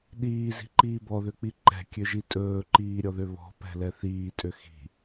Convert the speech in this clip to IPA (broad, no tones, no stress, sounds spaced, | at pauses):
ɗ iː z i̤ ǃ iː b ɔ ð ø k͡p i ǃ ɛ̤ kʲ ø ʒ i tʼ ɵː ǃ iː ɾʲ ɔ ð ø β ɔ̤ p ɛ̤ l ɛ θ iː tʼ ø x i̤